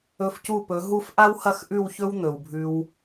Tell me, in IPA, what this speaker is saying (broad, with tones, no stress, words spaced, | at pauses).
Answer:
ɵ˧fcu˦˨pɵ˨˦ɦu˦f ʔa˦whɐ˦˨xʔʉ˦˨wçɵ˦w n̪ɵ˨wbʱʉ˧w